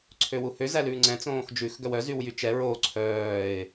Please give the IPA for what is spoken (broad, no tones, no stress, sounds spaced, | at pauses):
ǀʰ ø w u h ø z æ l ʉː ŋ͡ǀ ɛ̃ t͡s õː x d͡ʒ ʉ x ɡ œ w œ z y w j y t͡ʃ ɛ ɹ o ǀʰ œː ɪ̯